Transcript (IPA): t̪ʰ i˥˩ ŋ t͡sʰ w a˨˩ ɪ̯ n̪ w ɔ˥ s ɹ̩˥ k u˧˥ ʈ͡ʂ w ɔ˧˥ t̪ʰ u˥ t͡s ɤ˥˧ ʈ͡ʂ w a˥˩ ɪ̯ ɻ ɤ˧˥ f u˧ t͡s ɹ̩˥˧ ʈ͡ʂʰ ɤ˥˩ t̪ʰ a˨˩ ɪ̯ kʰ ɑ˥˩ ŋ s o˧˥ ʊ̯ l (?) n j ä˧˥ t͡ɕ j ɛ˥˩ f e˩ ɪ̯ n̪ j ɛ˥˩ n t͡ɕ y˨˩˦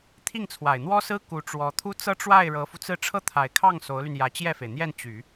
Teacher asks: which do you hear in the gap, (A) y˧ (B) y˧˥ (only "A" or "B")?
A